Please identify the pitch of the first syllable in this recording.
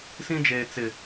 high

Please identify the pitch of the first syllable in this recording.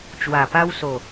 low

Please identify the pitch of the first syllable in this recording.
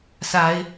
rising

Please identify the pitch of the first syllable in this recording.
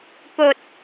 low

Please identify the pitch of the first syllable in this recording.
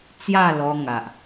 falling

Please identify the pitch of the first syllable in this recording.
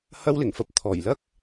high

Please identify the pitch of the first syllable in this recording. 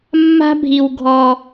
high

